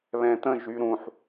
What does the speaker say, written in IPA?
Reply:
β ɛ̃ t̪ ə̃ ʒ y ɾ ũ ħ

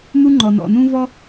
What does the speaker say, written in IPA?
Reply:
n̪ u˥ ŋ͡ǃ ɔ˩ n ɔ̰˩ n ũː˥ v ɔ˥

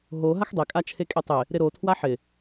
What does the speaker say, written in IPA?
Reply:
ɦ o ɦ a x dˤ e kʼ a t͡ʃʰ e kʼ e tˤ ɪ | ɾ ɪ ɾ o tʰ w a ħ ɪ

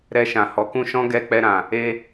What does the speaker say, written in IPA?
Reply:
ɾ ɛ˧ ʃ ã˨ h ɔ˨˦ k ũ˦ ʃ ɔ̃˦ ɡ ɛ˧ k͡p ɛ˧ ɾ ã˨ | e˧

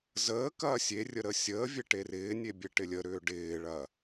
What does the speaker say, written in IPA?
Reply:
z əː k ɐː sʲ e rʲ ə ɾ ə sʲ əː vʲ e ʈ e r ɪː nʲ e bʲ e ʈ ɪ lʲ ə ɾ ʏː ɖ ɪː ɭ ɐ

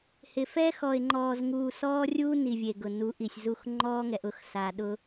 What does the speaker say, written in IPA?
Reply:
h ɪ˨ f ɛ˦ x ɔ˨ ɪ̯ ŋ͡ǃ ɔː˨ z ŋ uː˨ s ɔː˦ rʲ uː˦ n i˨ vʲ e˨ ɡ ʊ˨ n u˨˦ ʔ i˨ sʲ z u˦˨ x ŋ͡ǃ ɔː˦ ŋ ɛ˨ ʔ ʊ˦ x s a˨ ɗ ʊ˦

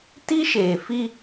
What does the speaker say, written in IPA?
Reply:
t i˦ ʃ eː˨ f i˦

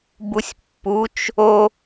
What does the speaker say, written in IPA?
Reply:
b u sʲ pː u t͡ʃ | o

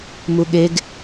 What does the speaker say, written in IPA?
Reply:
m u ɠ e ɡ

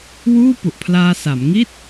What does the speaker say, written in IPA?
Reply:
w uː˥˩ p u˨˩ ʔ pʰ l aː˧ s a˩˦ m ŋ i˥˩ t̚

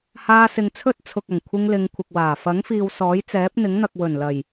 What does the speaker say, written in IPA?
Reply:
h aː˧ s ɪ˨ ŋ t͡sʰ ɵ˥ t̚ t͡sʰ ʊ˨ k̚ ɐ˨˩ ŋ kʷʰ ɪ˧ ŋ l ɪ˨˧ ŋ kʷʰ ɪ˨ k̚ w aː˨˩ f ɐ˨˥ ŋ f iː˨ w s ɔː˨˥ j t͡s ɛː˨˥ p̚ n̪ ɪ˨˥ ŋ n̪ ɐ˨ k̚ w ɵ˨˩ n l ɐ˨˩ j

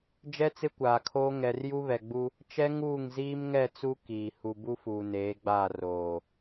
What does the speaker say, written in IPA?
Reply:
d͡ʒ ɛ˦ t͡s ɪ˦ kʷ aː˨ kʰ oː˦ ŋ ɛ˨ r j u˦ β ɛ˨ ɡ͡b u˦ | t͡ʃ ɛ˦ ŋ uː˦˨ ŋ z iː˦ m ŋ ɛ˦˨ t͡s u˦ k iː˨ h u˨ b u˦ f uː˨ n eː˨˦ ɡ͡b aː˦˨ r oː˨

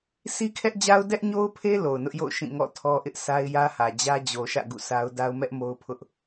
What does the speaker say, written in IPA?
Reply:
s i˦ kʰ ɛ˦ ʔ d͡ʑ a˦ ʊ̯ d ɛ˦ ʔ ɲ o˦ ʊ̯ pʰ e˦ l o˨ ʊ̯ n ʊ˦ ʔ j o̰˦˨ ʊ̯ ʃ ĩ˦˨ ŋ ɔ̰˦˨ tʰ ɔ˦ ʔ ɪ˦ ʔ sʰ a˦ ɪ̯ j ä˦ h ä˨ d͡ʑ ä˦ d͡ʑ o˨ ʃ ä̰˦˨ ɡ ṵ˦˨ sʰ a˦ ʊ̯ d a˦ ʊ̯ m ɛ˦ ʔ m o˦ ʊ̯ pʰ ʊ˦ ʔ

